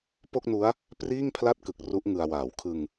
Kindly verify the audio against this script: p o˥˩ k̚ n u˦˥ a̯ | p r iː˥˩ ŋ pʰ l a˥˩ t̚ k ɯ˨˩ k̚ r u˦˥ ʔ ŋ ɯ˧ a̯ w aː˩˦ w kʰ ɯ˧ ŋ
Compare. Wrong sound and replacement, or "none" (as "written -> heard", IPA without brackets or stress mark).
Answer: none